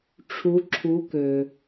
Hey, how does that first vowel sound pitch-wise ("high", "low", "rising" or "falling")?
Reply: rising